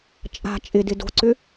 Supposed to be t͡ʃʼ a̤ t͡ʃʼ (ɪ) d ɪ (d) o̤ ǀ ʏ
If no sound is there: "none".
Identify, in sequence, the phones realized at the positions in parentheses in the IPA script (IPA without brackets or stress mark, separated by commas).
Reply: ɪ, d